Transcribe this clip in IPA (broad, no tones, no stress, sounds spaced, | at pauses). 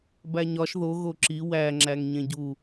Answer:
b æ ɲ ɒ ʃ ð o ɣ o ǁ i w æ ŋ͡ǁ æ ŋ ɲ ẽ ɟ u